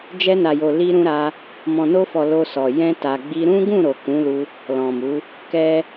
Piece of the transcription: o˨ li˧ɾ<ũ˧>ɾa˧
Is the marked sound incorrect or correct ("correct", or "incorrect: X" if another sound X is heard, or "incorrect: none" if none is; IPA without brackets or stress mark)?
correct